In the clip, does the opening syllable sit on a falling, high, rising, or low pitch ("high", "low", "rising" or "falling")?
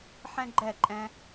high